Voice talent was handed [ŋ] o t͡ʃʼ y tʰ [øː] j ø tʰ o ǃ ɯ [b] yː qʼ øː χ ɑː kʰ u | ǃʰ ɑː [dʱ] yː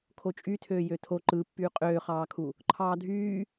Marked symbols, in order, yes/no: no, yes, no, yes

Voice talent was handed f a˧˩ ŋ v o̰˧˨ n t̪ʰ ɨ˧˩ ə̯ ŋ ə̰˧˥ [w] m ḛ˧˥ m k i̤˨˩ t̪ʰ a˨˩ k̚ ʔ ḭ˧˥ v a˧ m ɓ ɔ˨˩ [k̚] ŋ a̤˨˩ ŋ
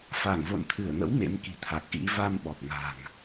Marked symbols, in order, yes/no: yes, yes

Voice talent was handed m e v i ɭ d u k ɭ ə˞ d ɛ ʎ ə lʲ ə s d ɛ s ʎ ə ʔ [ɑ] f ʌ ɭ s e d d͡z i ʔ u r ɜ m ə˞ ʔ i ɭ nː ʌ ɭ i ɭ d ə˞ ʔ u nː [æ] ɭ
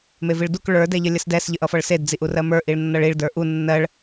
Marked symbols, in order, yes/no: no, no

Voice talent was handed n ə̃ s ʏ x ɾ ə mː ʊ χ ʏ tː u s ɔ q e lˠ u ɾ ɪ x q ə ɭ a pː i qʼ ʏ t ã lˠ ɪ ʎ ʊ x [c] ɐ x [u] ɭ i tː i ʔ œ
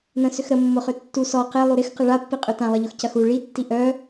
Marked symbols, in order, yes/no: yes, yes

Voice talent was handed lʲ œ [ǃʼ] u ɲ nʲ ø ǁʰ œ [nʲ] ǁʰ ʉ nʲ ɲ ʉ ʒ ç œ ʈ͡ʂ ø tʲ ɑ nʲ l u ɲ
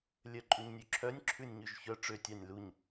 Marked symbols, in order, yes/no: yes, yes

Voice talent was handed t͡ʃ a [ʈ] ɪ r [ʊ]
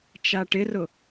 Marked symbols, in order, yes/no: yes, yes

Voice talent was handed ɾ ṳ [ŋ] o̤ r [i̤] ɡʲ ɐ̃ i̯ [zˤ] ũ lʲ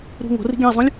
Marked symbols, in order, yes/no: yes, yes, yes

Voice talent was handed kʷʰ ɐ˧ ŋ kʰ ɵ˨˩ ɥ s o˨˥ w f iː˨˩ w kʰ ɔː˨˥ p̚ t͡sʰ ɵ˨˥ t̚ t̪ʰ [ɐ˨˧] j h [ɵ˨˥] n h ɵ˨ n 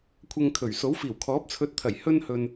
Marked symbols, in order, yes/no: no, no

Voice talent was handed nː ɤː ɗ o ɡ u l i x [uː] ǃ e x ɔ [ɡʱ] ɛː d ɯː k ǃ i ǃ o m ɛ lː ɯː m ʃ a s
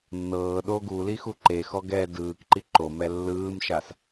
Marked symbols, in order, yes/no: no, no

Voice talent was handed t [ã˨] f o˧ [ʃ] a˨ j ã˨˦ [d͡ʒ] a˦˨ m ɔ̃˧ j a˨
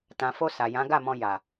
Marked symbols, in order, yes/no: yes, no, no

